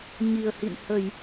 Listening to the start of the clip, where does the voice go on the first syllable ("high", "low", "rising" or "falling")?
low